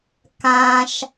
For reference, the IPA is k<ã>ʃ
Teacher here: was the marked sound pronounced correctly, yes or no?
yes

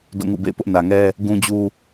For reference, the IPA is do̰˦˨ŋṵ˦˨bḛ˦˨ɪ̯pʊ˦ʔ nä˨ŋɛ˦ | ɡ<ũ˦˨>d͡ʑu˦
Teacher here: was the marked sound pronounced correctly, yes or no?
no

